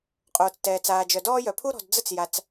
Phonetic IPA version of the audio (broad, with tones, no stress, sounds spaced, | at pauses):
qʼ oː˩ t͡s t ɛː˩ t͡s aː˩ d͡ʒ œ˩ d ɔː˦ j œ˩ pʰ u˦ ɾ ɔ̤˩ d d͡z ə˦ t͡s j a˩ t͡s